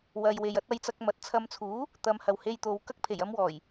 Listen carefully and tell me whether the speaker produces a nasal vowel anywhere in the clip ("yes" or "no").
no